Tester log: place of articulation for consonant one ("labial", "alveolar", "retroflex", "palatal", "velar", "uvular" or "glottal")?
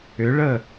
retroflex